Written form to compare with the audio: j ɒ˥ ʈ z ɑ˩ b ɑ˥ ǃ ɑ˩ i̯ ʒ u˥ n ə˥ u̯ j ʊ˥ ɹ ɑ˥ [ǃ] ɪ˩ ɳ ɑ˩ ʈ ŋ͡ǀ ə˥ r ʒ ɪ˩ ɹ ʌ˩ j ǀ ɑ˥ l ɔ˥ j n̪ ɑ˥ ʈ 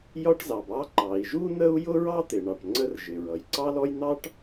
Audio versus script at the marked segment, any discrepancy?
yes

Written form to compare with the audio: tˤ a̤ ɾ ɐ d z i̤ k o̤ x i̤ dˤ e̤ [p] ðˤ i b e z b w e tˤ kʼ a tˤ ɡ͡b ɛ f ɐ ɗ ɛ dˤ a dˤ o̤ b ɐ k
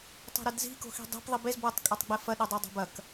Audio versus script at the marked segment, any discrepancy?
no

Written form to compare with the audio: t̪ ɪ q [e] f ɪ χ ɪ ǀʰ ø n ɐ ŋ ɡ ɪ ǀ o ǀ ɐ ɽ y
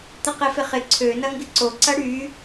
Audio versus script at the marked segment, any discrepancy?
no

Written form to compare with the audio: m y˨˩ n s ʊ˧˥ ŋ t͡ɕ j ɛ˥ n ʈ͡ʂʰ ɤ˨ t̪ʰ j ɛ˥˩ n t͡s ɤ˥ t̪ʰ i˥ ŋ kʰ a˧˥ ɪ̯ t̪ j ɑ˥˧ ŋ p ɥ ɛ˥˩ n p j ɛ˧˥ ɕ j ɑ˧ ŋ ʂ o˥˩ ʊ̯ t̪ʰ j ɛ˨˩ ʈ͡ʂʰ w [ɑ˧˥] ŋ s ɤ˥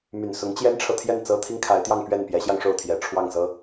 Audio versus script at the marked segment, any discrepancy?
yes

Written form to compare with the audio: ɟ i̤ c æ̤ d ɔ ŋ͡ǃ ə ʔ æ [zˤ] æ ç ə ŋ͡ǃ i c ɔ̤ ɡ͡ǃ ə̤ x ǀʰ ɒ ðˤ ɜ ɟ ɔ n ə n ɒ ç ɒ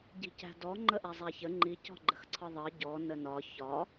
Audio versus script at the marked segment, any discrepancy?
no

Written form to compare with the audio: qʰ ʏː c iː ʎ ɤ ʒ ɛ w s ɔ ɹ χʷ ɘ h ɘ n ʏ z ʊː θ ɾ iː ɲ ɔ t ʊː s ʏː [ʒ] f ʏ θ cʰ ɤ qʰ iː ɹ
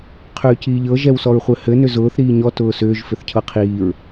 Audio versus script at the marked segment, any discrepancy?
no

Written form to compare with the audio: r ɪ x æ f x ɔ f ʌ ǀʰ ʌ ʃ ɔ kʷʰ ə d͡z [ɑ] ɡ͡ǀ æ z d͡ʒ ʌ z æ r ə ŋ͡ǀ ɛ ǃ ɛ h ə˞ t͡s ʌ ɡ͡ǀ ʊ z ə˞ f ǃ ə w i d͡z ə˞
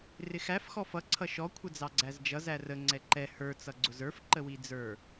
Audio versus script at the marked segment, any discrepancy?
no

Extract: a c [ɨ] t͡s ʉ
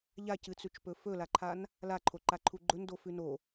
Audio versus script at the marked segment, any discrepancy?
no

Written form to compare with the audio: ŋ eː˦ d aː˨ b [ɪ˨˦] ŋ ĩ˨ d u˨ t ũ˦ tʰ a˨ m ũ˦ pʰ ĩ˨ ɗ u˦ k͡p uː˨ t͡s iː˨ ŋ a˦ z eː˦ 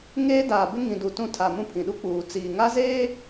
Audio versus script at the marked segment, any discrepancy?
yes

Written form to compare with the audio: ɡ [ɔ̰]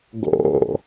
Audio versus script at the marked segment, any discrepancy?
no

